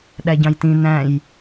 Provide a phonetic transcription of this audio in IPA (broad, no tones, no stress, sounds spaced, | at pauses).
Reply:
ɗ æ ɟ ɑ̃ j t ĩ n æ̃ j